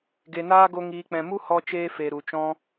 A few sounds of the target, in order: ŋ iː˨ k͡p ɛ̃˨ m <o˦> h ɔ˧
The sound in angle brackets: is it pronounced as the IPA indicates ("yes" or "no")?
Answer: no